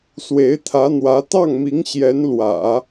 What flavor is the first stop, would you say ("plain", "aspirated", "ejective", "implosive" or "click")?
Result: aspirated